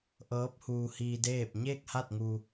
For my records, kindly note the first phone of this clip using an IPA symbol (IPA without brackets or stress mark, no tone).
ʔ